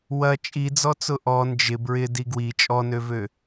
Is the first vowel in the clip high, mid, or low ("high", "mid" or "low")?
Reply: low